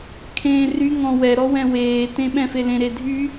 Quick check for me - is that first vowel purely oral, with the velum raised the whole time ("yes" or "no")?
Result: no